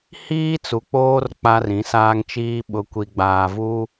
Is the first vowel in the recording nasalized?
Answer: no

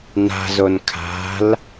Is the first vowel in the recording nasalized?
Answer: no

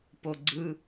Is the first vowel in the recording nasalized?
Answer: no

